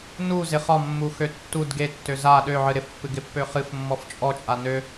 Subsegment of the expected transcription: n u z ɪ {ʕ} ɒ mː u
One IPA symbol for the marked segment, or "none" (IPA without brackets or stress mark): χ